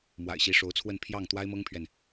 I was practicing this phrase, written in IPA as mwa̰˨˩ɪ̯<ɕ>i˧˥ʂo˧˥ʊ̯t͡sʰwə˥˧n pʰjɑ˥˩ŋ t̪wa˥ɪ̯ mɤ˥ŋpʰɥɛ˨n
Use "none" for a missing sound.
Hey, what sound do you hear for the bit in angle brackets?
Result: ɕ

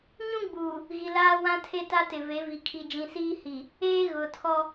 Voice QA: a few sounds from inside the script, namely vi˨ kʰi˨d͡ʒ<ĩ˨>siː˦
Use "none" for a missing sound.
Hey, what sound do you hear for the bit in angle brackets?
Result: ĩ˨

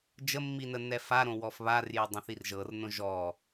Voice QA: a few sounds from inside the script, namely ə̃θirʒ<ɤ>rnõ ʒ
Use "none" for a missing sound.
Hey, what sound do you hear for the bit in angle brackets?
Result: ɤ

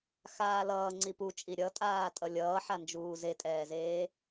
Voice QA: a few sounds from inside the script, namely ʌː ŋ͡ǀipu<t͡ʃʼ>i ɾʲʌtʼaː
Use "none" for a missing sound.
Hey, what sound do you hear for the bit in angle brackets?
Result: t͡ʃʼ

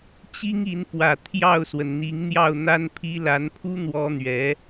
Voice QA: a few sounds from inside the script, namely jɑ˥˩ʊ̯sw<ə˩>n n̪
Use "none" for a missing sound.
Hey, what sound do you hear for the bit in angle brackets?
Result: ə˩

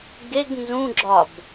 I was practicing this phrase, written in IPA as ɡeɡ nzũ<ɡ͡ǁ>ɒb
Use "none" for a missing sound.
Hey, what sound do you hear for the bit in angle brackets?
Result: ɡ͡ǁ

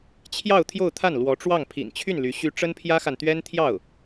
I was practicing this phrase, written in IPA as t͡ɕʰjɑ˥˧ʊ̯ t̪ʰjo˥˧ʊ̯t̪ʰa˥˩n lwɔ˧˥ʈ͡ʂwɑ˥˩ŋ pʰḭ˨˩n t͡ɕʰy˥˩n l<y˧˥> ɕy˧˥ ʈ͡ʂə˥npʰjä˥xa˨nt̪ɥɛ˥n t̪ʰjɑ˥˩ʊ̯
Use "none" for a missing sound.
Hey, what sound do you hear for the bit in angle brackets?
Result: y˧˥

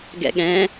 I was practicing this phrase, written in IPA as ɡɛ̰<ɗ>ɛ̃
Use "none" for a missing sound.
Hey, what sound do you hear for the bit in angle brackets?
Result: ɠ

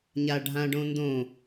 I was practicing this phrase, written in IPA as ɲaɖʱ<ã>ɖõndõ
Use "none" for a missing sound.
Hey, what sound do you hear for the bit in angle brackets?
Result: ã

